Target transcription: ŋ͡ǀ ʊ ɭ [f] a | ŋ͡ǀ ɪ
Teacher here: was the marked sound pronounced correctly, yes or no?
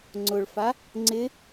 yes